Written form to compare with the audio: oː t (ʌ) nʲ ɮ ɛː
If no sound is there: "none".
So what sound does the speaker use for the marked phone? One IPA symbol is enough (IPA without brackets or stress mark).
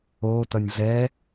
ʌ